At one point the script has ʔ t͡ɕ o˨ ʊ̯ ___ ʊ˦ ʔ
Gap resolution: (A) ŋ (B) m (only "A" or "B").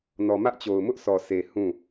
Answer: B